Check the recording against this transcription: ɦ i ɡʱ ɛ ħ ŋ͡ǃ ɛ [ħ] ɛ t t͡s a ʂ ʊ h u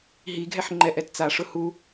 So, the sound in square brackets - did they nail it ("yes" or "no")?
no